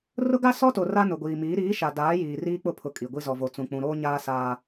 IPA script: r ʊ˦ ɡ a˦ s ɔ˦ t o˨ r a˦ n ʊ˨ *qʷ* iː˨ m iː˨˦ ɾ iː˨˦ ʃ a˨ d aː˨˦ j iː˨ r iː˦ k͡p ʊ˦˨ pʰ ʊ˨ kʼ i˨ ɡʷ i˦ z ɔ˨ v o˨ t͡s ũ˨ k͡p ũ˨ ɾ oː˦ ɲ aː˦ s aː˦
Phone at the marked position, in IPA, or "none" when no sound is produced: ɡʷ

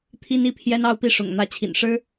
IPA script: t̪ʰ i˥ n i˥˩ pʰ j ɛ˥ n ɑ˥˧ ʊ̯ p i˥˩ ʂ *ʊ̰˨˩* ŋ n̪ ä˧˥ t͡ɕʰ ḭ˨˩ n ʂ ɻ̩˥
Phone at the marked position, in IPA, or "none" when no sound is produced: ʊ̰˨˩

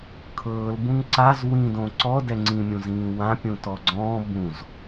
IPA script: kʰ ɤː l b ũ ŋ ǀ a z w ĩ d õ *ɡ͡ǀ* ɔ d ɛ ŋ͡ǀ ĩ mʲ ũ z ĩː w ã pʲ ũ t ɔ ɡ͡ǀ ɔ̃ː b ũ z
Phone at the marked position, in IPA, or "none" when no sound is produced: ǀ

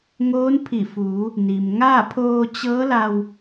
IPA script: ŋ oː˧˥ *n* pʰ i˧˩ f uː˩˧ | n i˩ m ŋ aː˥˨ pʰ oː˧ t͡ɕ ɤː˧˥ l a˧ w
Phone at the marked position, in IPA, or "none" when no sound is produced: n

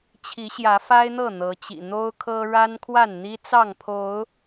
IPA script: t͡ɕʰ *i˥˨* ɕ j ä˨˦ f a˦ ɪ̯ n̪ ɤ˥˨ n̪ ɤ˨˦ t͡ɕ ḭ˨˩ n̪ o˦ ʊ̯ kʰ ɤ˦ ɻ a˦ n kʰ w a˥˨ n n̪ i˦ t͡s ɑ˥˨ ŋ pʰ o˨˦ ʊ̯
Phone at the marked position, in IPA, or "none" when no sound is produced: i˨˦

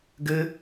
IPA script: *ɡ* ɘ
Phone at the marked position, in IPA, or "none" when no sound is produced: ɡ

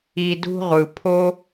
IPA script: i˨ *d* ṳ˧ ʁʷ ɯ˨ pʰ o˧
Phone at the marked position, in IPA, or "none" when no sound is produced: d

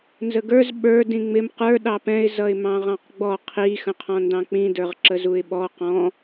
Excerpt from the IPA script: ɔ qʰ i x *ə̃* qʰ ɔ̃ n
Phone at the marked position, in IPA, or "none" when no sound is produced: ə̃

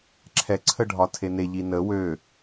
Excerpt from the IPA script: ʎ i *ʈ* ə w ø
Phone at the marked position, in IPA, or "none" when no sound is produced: n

